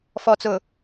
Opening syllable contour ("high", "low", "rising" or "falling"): low